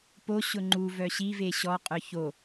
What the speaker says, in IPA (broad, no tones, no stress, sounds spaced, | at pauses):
p o ɕ ʊ ŋ͡ǃ u v œ ɕ i v e ɕ ɔ qʼ œ ç o